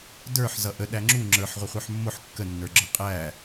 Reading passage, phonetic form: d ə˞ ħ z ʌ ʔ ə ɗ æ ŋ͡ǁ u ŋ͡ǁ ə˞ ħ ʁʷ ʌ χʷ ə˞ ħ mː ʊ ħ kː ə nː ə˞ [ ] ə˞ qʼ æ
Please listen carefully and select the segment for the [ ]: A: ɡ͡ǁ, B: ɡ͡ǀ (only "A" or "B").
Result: A